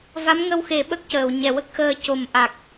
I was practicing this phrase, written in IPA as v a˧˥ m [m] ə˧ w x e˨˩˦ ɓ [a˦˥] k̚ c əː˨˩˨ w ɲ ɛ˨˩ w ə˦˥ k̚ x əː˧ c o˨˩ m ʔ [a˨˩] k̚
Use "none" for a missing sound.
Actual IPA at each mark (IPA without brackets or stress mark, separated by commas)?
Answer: ŋ, ə˦˥, a˨˩